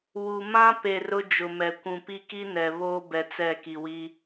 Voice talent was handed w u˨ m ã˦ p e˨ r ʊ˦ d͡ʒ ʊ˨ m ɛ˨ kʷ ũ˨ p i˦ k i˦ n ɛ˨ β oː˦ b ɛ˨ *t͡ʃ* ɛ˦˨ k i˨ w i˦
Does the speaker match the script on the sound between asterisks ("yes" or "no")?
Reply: no